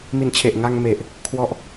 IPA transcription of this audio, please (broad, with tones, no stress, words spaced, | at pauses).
mi˨˩nt͡ɕʰe˨˩ʔ ŋa˧ŋme˨˩ʔ | kʰwɔ˦˥ʔ